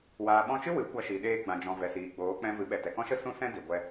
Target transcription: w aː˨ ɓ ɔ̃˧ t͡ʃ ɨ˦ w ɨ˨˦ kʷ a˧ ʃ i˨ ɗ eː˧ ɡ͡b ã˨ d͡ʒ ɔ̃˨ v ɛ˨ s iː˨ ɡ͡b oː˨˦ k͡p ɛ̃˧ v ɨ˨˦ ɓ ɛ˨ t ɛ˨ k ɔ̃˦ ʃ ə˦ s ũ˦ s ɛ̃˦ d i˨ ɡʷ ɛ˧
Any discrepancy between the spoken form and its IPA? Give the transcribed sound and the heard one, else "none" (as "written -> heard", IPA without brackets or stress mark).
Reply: none